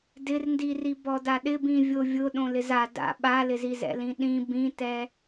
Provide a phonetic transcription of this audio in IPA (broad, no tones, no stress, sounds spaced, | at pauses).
d ɪ r n d i r i b ɔ d a ɗ ɪ b ĩ vʲ o vʲ ʊ ɗ õ l ɪ z a d a̰ ɓ a l ɪ z i z ɛ̰ l ĩ ɗ ĩ b ĩ t ɛ